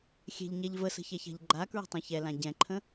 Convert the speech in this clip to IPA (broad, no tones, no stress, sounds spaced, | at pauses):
xʲ ɛ̤ ʎ ɲ ɛ ʎ v ə s ə̤ ç ɛ ç a̤ ʎ ɡ͡ǃ a k ɹ ə̤ tˤ ɛ̃ ç ɛ l ã ɟ ɛ̃ ǃʰ ə̃